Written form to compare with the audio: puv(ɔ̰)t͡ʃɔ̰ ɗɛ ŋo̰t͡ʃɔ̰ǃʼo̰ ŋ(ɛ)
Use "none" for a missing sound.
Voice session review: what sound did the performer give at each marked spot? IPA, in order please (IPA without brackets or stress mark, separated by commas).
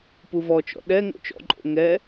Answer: ɔ, ɛ